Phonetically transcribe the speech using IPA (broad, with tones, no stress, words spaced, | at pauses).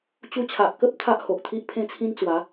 t͡ɕu˧t͡ɕʰa˨ʔkə˦p̚ t̪ʰa˦ʔ ho˨ʔt̪ʰi˦ʔ pʰẽ˦t͡sʰĩ˦nt͡swa˨˦